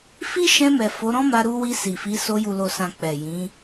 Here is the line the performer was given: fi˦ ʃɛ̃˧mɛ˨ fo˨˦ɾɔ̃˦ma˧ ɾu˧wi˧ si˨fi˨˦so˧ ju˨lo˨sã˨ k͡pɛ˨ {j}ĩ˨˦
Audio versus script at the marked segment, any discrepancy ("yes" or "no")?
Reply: no